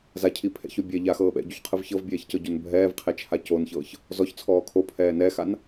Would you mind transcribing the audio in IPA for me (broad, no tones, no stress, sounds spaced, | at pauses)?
z a cʰ i pʰ ɛ̰ ç o bʲ ɛ ʎ a x ɤː ɓ ɛ̰ ɟ u ç qʰ ɯ v ç ɤ v bʲ ɛː ç c ɤ ɟ o n bʱ ɛː v qʰ e t͡ʃʰ a c o n ç ɤː ç | z ɔ ç t͡sʰ ɔː kʰ o pʰ ɛː n ɛ x a n